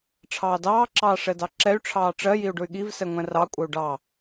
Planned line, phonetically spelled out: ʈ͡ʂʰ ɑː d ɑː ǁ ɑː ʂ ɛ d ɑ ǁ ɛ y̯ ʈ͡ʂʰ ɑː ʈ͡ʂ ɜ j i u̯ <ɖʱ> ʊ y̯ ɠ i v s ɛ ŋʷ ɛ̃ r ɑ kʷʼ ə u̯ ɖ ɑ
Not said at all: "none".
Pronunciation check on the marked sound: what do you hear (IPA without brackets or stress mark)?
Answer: ɖ